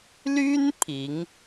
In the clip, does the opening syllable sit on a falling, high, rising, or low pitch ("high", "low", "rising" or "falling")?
high